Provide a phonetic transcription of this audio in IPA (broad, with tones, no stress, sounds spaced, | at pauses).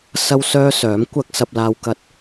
s ɐ˥ w s œː˥ s œː˨˥ m kʷ ɐ˥ k̚ s ɐ˧ p̚ l aː˧ w k ɐ˧ t̚